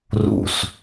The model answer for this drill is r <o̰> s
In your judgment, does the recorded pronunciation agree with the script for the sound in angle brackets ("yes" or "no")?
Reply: no